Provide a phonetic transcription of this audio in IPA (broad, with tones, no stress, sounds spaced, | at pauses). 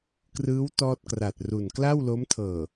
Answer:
k r ɯː˦˥ w t ɔː˥˩ t̚ k r a˨˩ t̚ r u˨˩ n k l a˥˩ w l o˦˥ m tʰ ɤː˨˩